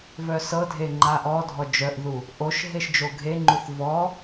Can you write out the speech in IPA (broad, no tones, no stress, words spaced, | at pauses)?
vœsɤdʱe ŋ͡ǃaʔɔdʱɔ d͡ʒœʔðu | ʔoʃɦeʃ d͡ʒoɡʱeŋ͡ǃuθ vɔ